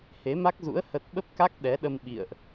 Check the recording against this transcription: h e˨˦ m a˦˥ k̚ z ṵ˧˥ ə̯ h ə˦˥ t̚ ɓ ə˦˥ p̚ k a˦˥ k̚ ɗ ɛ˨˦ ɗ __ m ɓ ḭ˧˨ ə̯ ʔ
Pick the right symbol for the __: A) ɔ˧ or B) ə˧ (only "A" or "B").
B